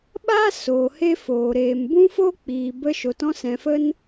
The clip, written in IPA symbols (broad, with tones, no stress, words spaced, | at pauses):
ɓa˦ soː˨ he˦foː˨ɾeː˨m bũ˦fo˦ k͡piː˨bə˧ ʃo˨tɔ̃˧sɛ̃˨fə˦n